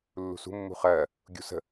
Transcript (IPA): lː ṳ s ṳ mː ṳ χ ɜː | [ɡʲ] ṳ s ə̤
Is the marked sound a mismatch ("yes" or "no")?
no